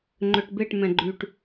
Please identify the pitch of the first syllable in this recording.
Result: low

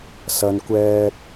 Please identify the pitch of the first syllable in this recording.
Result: low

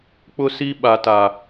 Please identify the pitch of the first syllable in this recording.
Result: high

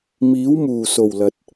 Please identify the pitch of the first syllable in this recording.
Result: rising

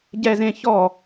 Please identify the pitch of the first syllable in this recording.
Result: high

